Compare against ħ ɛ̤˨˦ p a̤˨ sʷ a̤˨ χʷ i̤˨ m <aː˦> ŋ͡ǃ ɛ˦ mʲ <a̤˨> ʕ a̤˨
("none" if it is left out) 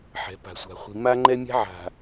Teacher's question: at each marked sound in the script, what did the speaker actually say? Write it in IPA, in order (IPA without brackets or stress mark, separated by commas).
a˦, a̤˦